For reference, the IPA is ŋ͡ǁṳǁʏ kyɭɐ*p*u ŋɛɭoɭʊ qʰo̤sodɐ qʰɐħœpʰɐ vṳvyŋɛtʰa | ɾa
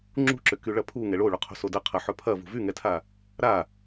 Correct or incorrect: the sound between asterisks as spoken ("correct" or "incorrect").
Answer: incorrect